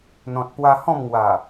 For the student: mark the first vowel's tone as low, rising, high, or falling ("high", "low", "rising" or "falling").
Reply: low